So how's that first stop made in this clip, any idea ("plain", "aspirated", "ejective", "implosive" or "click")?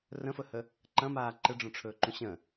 click